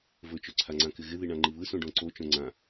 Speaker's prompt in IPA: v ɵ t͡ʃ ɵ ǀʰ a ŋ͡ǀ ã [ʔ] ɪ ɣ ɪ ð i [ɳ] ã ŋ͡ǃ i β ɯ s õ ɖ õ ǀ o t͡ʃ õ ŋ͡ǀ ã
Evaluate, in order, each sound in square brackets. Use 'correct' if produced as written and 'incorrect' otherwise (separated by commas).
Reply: incorrect, correct